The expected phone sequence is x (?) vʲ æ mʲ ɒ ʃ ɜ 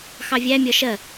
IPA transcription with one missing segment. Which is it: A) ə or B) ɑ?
B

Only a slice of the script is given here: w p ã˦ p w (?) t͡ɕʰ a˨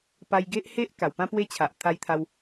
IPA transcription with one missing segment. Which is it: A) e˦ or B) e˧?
A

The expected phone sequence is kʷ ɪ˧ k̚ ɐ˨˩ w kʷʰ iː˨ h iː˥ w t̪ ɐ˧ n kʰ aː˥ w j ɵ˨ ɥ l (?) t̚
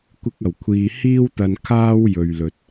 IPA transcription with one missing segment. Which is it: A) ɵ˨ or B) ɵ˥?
A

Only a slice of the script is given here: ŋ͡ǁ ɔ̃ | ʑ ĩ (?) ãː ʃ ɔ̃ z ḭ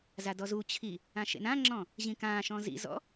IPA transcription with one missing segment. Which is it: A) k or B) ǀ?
A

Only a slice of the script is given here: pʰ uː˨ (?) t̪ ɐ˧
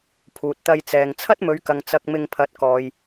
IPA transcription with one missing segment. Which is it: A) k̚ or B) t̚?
B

